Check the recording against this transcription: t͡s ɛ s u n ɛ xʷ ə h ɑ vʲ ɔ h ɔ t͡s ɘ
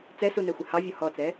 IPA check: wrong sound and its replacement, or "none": ɘ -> ɛ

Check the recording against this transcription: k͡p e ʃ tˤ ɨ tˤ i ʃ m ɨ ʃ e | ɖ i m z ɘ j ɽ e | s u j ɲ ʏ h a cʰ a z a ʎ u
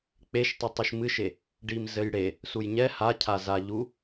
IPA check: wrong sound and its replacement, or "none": ʏ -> ɛ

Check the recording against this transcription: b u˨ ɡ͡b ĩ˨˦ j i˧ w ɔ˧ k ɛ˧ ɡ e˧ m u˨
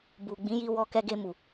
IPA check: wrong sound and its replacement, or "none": none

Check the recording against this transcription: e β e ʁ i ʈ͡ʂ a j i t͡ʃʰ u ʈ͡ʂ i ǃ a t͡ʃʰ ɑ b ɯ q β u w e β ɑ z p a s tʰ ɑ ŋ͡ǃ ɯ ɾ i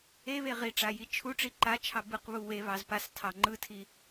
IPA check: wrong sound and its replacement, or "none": ɾ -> tʰ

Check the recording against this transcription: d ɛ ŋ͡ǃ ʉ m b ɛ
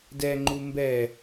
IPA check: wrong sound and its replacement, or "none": ʉ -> u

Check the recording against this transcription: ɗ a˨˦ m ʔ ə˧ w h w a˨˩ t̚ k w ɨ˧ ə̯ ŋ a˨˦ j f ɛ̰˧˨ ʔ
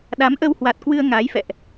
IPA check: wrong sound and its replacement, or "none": none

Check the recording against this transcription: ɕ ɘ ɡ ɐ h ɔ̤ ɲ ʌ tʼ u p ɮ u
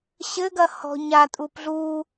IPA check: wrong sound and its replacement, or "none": ʌ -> a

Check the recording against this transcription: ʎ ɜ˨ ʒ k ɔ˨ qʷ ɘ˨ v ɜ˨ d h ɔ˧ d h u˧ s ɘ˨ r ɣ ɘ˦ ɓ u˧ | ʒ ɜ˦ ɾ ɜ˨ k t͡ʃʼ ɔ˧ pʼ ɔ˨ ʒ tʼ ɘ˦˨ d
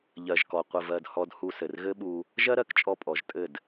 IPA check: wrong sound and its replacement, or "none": none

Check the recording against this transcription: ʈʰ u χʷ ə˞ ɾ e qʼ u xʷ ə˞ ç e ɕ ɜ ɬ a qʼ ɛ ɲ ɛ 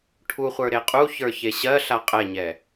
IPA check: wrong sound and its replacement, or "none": xʷ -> ç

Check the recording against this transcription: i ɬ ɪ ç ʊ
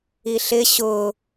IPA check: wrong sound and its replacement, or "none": ç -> ɕ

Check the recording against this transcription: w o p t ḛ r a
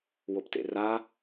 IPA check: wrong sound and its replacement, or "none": none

